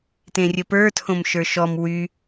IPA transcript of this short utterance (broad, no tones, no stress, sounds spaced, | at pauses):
t ẽ rʲ ə p ə˞ tʰ õ m ʃ ə˞ ʃ ɔ m w y